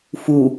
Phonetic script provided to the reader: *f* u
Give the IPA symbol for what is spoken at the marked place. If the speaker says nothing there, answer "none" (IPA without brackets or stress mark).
f